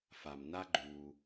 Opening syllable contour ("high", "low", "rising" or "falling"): low